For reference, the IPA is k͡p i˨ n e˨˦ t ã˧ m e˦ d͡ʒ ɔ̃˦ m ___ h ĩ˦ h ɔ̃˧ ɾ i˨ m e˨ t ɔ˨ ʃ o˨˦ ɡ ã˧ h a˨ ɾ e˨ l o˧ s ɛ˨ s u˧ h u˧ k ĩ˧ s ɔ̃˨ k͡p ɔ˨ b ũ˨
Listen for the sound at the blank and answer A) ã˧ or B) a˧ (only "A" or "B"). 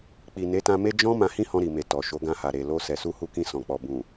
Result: A